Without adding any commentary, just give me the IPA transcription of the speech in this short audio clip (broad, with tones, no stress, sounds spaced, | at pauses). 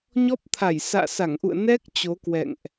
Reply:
ɲ ɔ˦˥ p̚ t̪ʰ a˧˩ j s a̰ː˧˨ s a˧˩ ŋ ʔ ṵ˧˨ ə̯ n ɛ˦˥ k̚ t͡ɕ o˨˦ k w ɛ̰˧˨ ŋ ʔ